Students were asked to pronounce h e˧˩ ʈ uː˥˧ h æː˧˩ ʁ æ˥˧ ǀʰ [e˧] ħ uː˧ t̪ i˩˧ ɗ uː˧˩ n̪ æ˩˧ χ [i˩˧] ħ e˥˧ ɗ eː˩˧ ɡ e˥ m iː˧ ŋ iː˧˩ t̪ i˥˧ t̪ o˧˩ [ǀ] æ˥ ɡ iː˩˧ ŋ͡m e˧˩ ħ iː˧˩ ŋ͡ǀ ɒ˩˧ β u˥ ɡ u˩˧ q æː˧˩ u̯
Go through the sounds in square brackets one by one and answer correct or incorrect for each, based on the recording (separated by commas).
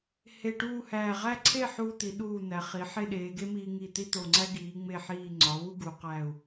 incorrect, correct, incorrect